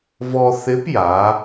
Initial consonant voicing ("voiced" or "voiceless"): voiced